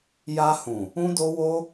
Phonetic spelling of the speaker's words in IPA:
j a˧ h ũ˨ | ũ˦ d o˦ w o˦

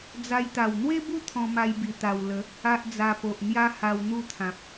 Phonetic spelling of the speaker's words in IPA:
d͡z a˧ j t̪ a˨˩ w n̪ w e˦ b u˦ t̪ʰ ɔ̃˧ m a˧ j b i˨˩ t̪ a˨˩ w l ə˨˦ | a˦ ʔ d͡z a˧ p o˨ ʔ n̪ j a˦ h a˧ w n̪ u˥˧ t̪ʰ ã˨ p̚

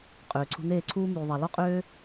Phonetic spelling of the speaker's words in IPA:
qʼ øː˨ ǀʰ ṳ˧ n̪ eː˦˨ ǀʰ uː˦ m yː˧ ðˤ a˧ l ɔ˦ qʼ øː˦

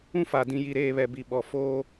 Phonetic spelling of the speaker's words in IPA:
ũ˦ f aː˨ d ĩ˨ j i˨ ɾ eː˨ β ɛ˨ b i˨ ɓ ɔ˨ f oː˦

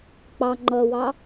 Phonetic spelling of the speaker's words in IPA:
k͡p ɑ ŋ͡ǃ ʌ w ɑ

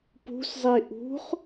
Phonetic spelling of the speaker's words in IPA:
p ṳ s zˤ i ʔ ṳ χ

